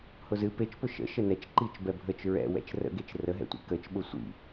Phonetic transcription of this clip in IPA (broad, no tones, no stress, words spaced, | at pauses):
hʊzɨ pet͡ʃpʊ ʃə̰ ʃənɛt͡ʃ ǃit͡ʃbɛ bʱət͡ʃ ɹɛ̰ wɛ̰t͡ʃrə̰ɡet͡ʃ rəɦɛ̰tʷḭ kət͡ʃɓʊ sʷḭ